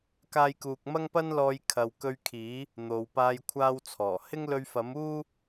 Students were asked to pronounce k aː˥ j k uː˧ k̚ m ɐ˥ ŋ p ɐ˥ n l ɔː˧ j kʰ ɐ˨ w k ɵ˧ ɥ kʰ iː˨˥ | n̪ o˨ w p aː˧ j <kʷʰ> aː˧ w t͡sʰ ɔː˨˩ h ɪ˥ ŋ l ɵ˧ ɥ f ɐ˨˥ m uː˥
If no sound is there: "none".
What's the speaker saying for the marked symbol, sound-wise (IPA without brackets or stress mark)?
kʷʰ